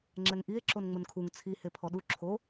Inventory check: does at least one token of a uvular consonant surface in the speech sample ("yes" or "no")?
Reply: no